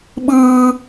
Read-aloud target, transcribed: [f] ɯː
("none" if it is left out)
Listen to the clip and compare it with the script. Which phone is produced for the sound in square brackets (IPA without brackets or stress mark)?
ɓ